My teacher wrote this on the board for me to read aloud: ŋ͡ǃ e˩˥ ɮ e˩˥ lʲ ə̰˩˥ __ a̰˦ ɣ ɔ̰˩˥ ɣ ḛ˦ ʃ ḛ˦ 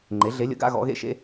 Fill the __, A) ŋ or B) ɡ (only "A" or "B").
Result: B